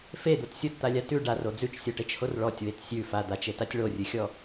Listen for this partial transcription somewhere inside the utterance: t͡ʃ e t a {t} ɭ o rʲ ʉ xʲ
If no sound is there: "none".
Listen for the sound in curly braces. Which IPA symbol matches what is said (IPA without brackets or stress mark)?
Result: tʲ